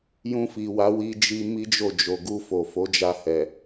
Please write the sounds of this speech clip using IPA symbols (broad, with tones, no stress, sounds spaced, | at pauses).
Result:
j ũ˧ f i˨ w a˨˦ w i˧ d͡ʒ i˧ m i˦ d͡ʒ o˦˨ d͡ʒ o˨ ɡ u˧ f o˨ f o˨˦ d͡ʒ a˧ h ɛ˨